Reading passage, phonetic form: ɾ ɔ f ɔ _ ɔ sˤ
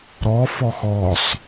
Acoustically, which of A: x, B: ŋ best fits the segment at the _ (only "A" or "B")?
A